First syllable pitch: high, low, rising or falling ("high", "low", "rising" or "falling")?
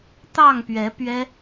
falling